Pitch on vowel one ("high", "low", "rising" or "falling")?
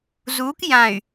rising